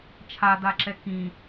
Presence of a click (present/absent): present